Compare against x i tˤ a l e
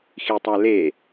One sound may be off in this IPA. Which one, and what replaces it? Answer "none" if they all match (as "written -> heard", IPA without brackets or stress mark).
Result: none